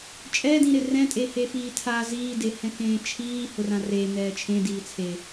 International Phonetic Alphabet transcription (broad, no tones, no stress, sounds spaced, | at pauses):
t͡ʃʼ ɛ d ĩ ɾ ɪ r ɛ̃ tʼ e h e f iː tʰ a z iː d e h ɛ̃ k ẽː t͡ʃʰ iː h ʊ r ã r e n ɛː t͡ʃʰ ẽ d iː t͡sʰ e